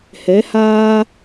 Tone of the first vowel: rising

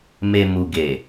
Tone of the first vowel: low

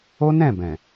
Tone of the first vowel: high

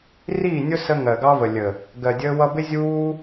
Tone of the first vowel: falling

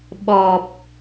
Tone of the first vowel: low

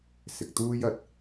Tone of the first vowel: low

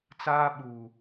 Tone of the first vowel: high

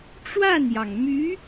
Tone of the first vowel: falling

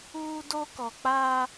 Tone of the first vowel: high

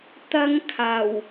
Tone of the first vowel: high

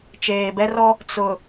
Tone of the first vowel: low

